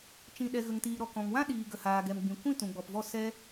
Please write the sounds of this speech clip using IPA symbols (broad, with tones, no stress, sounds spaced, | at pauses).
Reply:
t͡ʃ ĩ˨ ɗ ɛ˨ ɣ ə˨ ŋ t iː˨ ɾ ɔ˨ k ɔ̃˨ ŋ w ã˦ ɗ iː˨ ɡ ə˨ h aː˨ ɡ ɛ˨ m ɡ͡b ĩ˨ kʷ ĩ˦˨ t ũ˨ ɡ͡b ɔ˨ p v ɔ˦˨ s ɛ˦